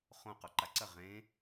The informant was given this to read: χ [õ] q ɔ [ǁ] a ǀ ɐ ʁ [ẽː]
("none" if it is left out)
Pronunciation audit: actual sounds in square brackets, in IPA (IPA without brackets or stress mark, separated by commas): õ, ǃ, ẽː